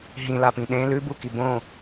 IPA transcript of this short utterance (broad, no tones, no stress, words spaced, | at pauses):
ɦĩlapĩ ɗẽ lʉbuki bõ